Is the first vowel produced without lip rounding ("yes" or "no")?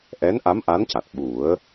yes